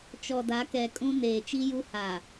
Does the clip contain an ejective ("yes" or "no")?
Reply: yes